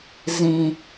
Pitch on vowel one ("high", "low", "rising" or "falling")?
low